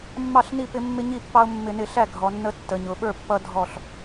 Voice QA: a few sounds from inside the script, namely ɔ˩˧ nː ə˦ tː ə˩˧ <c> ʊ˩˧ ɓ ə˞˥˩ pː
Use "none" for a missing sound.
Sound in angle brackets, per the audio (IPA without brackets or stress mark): ɲ